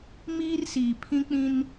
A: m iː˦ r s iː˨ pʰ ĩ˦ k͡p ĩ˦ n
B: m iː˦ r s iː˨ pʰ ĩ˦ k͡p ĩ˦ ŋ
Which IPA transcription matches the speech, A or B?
A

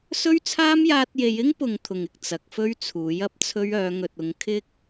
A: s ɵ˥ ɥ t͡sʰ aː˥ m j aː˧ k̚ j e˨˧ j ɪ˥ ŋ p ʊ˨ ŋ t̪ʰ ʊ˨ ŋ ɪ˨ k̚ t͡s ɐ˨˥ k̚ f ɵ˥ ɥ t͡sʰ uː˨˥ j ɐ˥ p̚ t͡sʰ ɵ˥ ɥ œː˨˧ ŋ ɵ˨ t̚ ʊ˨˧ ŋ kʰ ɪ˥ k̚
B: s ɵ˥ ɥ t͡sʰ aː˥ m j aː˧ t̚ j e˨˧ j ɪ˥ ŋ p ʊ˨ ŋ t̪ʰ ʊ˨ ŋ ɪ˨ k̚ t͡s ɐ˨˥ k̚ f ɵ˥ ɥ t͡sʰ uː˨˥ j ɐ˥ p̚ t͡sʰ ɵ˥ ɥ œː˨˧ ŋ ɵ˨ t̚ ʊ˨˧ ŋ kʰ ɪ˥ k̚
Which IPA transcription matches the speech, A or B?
B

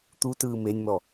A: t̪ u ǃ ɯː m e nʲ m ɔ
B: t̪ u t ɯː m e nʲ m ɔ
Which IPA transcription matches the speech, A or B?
B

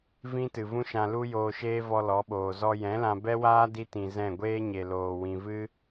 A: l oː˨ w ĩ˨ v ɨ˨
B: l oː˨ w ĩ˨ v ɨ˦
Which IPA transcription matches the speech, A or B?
B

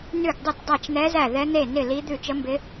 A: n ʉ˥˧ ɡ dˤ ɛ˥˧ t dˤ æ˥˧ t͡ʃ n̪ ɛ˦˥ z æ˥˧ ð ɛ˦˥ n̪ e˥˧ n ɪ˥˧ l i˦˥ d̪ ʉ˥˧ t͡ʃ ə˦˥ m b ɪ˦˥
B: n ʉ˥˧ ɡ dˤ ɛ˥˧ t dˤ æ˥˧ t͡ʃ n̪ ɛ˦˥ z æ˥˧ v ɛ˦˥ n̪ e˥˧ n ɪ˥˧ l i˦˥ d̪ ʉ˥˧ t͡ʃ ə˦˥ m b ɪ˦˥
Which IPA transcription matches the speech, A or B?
A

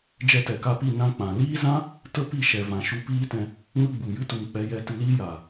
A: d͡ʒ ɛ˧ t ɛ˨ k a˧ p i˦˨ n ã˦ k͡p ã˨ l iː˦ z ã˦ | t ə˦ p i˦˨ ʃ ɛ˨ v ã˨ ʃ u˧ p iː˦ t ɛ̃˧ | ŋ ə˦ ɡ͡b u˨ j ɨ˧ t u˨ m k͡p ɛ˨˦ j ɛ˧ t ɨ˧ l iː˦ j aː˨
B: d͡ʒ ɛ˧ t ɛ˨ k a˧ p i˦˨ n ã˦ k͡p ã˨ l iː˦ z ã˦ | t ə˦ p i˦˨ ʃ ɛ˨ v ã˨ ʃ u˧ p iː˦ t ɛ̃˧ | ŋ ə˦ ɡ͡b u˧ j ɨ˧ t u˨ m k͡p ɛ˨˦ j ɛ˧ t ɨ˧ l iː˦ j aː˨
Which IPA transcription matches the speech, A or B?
A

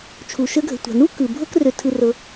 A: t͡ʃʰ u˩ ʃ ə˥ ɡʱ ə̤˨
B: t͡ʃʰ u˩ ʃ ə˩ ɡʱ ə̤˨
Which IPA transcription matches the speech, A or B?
A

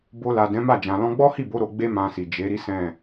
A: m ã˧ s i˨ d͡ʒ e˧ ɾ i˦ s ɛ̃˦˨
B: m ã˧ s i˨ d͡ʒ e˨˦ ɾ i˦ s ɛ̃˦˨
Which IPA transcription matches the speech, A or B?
B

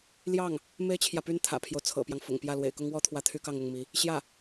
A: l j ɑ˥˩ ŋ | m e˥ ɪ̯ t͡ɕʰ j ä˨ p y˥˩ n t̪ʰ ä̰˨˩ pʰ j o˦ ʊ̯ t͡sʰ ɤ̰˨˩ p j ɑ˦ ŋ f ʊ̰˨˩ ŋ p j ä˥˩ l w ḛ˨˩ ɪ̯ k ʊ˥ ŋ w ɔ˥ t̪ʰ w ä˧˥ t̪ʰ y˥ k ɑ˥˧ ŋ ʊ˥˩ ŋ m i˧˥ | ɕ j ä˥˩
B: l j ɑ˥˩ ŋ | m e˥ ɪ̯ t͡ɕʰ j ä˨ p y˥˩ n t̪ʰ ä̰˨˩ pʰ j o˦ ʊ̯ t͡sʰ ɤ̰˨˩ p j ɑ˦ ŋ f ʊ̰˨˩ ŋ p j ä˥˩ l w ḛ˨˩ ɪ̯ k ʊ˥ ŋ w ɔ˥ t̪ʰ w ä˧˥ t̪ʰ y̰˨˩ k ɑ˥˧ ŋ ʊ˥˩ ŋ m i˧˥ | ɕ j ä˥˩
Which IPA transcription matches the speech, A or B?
A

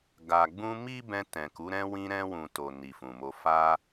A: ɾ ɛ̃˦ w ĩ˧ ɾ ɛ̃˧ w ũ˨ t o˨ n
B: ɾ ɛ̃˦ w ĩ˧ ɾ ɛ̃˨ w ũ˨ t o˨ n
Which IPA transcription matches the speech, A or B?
A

